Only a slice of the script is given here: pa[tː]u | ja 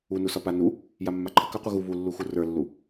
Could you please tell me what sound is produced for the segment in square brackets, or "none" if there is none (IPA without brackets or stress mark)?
n